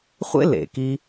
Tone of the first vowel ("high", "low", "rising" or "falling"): high